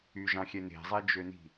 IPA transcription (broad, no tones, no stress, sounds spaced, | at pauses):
y ʒ ɑ̃ xʲ ɛ n e̤ zˤ e d͡ʒ ø n i̤